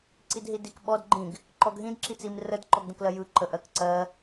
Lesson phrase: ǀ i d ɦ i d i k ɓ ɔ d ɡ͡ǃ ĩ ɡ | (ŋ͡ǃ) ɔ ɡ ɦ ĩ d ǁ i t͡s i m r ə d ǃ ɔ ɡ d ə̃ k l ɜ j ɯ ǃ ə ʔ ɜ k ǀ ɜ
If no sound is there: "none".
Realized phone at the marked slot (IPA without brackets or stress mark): ǃ